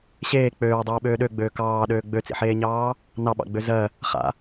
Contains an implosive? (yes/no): yes